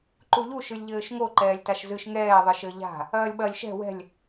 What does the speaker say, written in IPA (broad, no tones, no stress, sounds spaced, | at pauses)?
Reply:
ǃ u ʎ u ʃ ɨ lʲ ʎ ɘː ʃ ŋ o ǃ ɛː lʲ t a ʃ z ɨ ʃ ŋ ɛː ðˤ ɨ ʃ ɘ ʎ a̤ | ɐː lʲ ɓ ɐ lʲ ʃ ɛ̤ w ɛ̤ lʲ